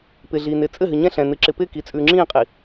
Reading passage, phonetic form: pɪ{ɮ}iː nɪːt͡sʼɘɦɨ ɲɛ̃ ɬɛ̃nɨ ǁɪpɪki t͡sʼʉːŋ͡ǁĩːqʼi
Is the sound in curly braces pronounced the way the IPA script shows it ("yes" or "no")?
yes